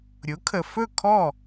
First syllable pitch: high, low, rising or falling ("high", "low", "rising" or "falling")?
rising